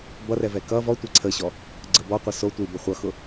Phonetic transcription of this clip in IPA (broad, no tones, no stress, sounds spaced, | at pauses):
b ʌ r ɛ v ɛ k ʌ v ɔ tʷ e ǀʰ ə ɕ ɔ | ɡ͡ǀ ə b ɔ qʷ ʌ s o tʷ i b o χʷ ʌ x ʊ